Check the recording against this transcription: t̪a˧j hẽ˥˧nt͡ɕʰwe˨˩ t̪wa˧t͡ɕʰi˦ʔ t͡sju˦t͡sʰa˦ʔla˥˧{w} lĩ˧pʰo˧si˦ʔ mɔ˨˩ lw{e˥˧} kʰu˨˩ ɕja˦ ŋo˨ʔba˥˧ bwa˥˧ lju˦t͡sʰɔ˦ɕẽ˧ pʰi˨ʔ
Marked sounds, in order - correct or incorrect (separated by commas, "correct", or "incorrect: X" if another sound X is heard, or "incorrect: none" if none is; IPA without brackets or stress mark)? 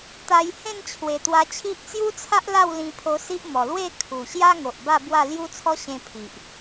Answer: correct, correct